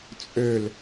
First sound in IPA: t͡sʼ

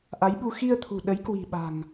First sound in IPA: ʔ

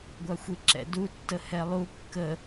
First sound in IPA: ɡʷ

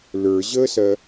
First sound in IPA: l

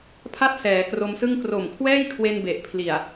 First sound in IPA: pʰ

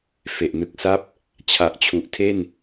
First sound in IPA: f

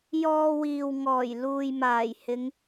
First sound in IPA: j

